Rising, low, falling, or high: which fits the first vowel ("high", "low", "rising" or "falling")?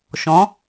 rising